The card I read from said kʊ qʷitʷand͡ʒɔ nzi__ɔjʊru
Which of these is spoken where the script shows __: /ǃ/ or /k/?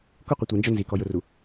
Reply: k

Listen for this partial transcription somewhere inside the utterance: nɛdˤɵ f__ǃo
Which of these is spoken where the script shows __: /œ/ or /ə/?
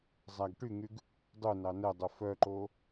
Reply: œ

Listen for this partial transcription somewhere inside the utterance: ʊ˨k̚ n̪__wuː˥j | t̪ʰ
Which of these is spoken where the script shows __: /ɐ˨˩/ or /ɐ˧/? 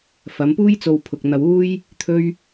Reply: ɐ˧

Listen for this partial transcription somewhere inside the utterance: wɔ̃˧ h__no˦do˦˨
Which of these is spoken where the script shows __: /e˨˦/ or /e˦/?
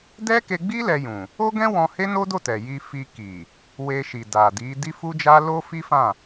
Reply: e˦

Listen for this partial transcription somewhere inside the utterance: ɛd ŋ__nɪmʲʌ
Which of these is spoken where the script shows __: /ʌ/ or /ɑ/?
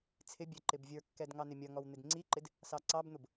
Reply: ɑ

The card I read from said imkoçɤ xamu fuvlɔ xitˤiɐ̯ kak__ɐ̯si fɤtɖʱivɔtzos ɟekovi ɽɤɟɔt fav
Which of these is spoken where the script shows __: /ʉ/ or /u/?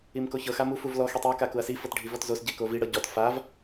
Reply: u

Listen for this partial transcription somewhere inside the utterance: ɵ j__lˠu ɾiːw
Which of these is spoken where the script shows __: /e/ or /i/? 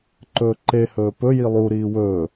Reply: i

